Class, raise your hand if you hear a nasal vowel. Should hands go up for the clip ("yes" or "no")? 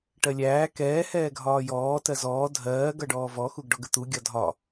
no